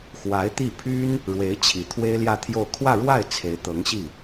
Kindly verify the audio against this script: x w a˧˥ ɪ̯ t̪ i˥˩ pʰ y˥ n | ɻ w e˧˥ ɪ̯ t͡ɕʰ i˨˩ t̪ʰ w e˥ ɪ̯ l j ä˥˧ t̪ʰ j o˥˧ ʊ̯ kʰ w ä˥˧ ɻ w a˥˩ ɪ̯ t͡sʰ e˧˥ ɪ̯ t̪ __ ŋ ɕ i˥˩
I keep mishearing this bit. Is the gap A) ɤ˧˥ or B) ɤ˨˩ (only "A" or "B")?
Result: A